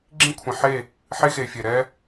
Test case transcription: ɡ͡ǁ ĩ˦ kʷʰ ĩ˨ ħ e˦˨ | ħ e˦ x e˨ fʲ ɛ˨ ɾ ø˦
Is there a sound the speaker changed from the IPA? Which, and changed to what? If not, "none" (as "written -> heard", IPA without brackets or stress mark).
ø˦ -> ɛ˦